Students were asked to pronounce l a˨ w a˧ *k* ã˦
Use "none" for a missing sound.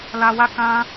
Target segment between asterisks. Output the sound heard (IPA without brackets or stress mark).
k